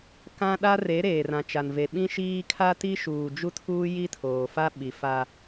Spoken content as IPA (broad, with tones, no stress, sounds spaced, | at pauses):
k ã˦ ɗ a˦ r e˨˦ ɾ eː˨ r ã˨ t͡ʃ a˨ n v e˨ ɓ ĩ˦ ʃ iː˦ kʰ a˦ t i˦ ʃ uː˨ d͡ʒ u˦ tʰ uː˦ j i˦ tʰ oː˨ f a˦ ɓ i˨ f a˦